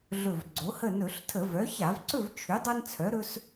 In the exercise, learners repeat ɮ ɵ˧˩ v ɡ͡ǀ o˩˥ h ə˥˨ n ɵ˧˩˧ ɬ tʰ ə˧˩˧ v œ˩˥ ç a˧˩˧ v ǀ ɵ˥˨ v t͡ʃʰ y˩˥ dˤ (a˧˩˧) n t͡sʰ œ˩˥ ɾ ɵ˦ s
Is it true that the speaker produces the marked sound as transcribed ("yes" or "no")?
no